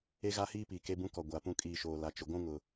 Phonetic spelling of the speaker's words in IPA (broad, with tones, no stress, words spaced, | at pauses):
e˦ɣa˦hiː˦piː˨ ke˦bũ˦kɔ˨ ɡʷa˨pũ˦kʼiː˦˨ʃoː˨ la˨t͡ʃʊ˨ɡʷũ˦ŋʊ˨